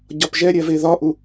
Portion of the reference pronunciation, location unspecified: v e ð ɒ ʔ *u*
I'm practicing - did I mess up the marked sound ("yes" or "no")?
no